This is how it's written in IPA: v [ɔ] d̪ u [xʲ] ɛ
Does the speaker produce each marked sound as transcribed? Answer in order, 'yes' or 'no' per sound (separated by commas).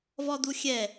yes, yes